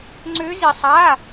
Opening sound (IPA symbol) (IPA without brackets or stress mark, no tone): ŋ͡ǀ